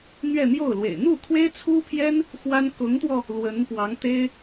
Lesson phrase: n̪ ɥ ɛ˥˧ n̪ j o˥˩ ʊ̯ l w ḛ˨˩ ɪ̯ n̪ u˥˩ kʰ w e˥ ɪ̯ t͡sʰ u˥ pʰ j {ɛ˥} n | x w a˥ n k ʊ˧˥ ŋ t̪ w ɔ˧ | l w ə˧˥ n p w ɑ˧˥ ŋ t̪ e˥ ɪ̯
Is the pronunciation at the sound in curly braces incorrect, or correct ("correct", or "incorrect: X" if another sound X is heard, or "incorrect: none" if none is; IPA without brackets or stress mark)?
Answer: correct